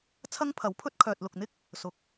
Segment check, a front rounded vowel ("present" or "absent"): present